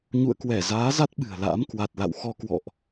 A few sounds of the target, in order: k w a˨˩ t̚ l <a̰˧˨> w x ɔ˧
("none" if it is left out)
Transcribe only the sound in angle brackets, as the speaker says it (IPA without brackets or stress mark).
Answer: a̰˧˨